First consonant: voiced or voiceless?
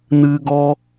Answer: voiced